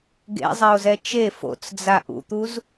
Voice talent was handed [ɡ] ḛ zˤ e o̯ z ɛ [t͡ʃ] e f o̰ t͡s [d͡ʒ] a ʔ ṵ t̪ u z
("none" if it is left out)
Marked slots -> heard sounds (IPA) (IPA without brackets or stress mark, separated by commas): ɡ, t͡ʃ, d͡z